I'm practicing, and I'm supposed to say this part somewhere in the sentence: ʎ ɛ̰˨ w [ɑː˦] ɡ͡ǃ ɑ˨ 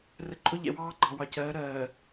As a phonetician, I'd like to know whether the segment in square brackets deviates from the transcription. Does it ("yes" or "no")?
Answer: no